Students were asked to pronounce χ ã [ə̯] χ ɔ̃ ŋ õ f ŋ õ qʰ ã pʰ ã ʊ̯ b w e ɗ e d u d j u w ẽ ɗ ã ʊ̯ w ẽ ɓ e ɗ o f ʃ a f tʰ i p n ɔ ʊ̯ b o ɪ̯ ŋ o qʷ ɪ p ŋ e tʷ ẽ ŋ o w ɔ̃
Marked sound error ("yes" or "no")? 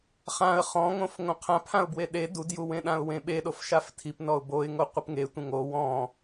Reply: no